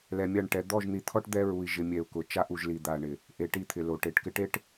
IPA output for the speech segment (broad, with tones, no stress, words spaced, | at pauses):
lɛ˨mʲa˦˨ɳ ʈɛ˨ d̪ɔ˦˨ʒn̪i˨t̪ʰɔ˦ʈ d̪ɛ˦ɹu˨i̯ ʒɪ˨mʲɛ˨u̯ kʊ˨ t͡ʃa˦ʔu˨ʒ li˨d̪a˨ɳɪ˨ | ʔe˨ʈi˦˨t̪ʰɪ˨ lo˨ʈe˨ʈkɪ˦ʈe˦ʈ